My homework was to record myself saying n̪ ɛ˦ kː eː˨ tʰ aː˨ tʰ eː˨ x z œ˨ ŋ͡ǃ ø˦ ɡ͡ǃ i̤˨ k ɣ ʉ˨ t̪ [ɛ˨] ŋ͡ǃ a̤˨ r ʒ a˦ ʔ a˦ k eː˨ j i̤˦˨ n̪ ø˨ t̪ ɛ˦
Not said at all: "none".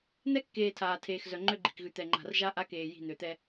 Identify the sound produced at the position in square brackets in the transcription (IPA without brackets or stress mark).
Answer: ɛ˨